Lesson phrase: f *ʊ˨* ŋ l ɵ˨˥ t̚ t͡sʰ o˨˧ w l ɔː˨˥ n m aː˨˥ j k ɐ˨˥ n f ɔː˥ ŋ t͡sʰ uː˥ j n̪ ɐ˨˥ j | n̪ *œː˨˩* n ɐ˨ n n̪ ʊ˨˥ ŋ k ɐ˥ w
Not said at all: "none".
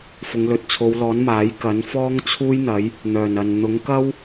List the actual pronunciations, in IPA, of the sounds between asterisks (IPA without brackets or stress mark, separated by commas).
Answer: ʊ˨˧, œː˨˩